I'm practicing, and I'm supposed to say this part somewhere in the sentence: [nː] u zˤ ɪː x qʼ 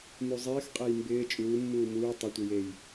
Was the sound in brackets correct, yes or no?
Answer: no